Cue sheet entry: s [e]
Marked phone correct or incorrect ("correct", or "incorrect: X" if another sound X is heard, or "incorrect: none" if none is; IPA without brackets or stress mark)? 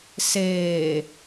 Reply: incorrect: eː